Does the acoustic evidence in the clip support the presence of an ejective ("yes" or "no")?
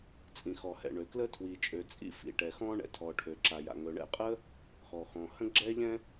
yes